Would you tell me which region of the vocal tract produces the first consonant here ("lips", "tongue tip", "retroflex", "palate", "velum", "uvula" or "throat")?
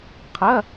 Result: uvula